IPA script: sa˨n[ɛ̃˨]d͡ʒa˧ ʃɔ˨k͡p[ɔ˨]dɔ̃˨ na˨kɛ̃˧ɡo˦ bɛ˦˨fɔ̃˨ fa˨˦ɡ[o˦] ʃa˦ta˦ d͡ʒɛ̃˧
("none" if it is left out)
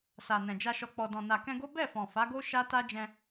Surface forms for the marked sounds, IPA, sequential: ɛ̃˨, ɔ˨, o˦

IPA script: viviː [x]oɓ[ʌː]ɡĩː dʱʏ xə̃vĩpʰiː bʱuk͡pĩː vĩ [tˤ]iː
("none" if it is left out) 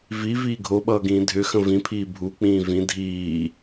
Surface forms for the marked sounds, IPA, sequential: ɡʱ, ʌː, dʱ

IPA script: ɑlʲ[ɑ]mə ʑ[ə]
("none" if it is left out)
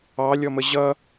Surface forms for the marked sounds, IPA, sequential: ɔ, ʌ

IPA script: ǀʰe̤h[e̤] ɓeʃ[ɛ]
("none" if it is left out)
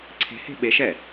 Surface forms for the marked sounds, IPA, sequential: e̤, ɛ

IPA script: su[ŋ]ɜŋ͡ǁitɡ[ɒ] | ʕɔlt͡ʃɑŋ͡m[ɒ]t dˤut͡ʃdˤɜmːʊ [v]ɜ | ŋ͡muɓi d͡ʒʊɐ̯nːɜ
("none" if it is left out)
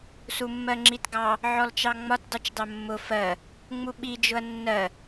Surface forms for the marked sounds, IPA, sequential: mː, ɑ, ɒ, f

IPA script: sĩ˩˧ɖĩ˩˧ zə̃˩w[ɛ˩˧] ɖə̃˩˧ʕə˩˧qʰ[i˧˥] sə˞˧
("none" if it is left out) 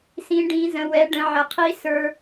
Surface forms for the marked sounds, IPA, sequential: ɛ˩˧, i˧˥

